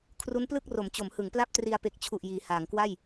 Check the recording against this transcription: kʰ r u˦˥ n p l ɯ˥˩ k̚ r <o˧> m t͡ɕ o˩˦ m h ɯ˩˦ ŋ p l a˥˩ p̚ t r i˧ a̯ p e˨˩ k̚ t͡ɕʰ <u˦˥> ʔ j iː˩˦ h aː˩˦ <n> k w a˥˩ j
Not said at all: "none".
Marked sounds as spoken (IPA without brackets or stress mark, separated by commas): o˩˦, u˨˩, ŋ